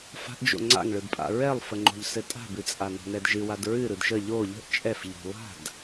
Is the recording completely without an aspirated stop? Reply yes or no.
yes